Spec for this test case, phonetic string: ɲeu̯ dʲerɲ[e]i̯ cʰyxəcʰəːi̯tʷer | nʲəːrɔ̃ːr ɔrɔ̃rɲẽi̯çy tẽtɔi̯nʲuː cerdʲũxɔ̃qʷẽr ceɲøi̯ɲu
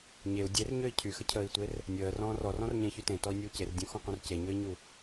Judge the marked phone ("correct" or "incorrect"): incorrect